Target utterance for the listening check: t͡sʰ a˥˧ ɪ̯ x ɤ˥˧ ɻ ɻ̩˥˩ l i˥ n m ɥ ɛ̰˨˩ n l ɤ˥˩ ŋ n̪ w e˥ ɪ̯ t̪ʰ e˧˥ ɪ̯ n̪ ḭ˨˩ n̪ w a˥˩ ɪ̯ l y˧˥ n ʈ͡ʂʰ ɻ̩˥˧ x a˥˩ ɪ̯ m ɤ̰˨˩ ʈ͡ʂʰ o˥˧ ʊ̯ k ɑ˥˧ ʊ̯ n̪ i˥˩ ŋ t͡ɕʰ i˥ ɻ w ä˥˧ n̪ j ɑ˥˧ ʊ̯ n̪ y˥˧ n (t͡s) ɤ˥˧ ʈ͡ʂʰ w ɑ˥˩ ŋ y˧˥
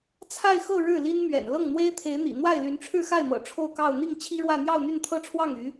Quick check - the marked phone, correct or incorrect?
incorrect